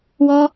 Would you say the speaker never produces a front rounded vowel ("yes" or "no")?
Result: yes